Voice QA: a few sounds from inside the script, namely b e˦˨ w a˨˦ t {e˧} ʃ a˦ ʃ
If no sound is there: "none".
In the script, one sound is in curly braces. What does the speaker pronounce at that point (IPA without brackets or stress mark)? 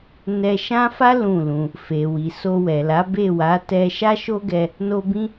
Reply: ɛ˧